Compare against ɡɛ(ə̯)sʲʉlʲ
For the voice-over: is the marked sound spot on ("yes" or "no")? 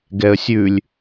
yes